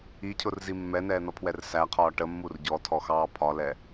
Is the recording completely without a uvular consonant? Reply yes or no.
no